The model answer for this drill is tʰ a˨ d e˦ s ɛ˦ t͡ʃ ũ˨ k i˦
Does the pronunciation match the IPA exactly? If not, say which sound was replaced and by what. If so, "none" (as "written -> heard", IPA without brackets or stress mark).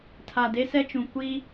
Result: k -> kʷ